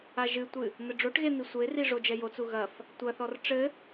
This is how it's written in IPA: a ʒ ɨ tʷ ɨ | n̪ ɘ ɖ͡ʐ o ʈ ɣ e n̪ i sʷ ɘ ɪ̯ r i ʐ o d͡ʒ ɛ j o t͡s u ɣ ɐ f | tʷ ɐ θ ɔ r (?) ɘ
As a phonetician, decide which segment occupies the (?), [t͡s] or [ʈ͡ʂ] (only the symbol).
ʈ͡ʂ